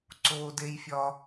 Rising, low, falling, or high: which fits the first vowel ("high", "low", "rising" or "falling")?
high